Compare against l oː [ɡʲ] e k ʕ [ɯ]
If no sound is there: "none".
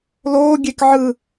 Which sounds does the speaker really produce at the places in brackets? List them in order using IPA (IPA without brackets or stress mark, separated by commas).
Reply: ɡʲ, ɯ